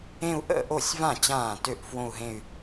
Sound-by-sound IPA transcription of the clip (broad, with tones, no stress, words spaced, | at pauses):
ẽ˥˧u̯ʔə̰˥˩ʔo˥˩sʲvã˥˩ t͡ɕãː˥˩tø˥˩ʔfwõ˥˧u̯ɦẽ˥˧y̯